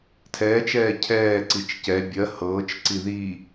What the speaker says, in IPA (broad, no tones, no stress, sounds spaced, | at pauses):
tʰ ɛː t͡ʃ ɛː cʰ ɛː ǀ i t͡ʃ c ɛ bʲ ɜ h ɤː t͡ʃ ǀ i ð i